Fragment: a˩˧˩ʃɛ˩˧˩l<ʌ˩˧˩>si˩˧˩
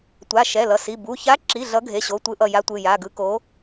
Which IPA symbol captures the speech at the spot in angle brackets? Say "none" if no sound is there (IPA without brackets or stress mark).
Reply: ʌ˩˧˩